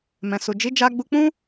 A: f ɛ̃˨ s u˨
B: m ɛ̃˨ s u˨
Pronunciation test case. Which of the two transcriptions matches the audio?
B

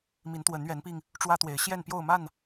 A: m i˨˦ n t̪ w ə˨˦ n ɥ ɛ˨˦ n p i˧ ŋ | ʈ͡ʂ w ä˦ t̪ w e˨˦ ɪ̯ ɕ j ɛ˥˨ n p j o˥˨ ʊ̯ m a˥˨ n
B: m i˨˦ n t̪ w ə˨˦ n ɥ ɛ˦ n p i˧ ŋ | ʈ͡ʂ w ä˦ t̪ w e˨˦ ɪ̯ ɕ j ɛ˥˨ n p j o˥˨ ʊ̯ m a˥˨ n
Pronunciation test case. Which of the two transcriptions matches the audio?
A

